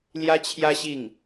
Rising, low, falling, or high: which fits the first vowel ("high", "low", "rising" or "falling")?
high